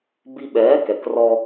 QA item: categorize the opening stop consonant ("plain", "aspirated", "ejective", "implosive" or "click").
plain